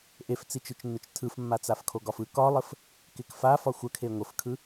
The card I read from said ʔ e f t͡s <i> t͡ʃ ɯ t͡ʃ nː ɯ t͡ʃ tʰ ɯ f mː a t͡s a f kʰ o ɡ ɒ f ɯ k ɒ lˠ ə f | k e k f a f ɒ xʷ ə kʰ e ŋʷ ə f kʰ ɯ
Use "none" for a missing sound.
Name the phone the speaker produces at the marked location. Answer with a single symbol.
i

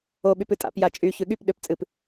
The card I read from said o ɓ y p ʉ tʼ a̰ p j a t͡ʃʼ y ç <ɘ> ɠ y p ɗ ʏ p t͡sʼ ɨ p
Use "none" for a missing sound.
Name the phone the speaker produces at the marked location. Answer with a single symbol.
ʉ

